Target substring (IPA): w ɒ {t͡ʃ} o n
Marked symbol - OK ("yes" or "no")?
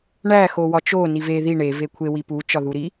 yes